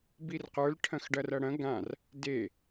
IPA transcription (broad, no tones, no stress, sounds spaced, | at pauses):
b i r q ə˞ l ʈʰ ɐ̃ x ɖ ɐ r ɐ ɽ ɐ̃ ɡ ã r | d e